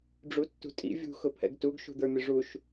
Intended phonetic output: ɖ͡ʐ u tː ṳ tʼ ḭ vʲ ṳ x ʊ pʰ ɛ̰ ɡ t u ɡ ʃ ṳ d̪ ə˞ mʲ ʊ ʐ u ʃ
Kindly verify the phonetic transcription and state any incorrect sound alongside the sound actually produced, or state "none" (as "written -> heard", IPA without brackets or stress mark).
none